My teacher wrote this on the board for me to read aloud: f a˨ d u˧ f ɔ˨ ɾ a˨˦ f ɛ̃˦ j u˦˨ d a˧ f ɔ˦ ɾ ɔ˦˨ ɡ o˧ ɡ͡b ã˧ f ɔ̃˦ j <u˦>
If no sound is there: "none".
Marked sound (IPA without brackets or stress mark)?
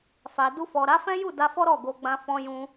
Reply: ũ˦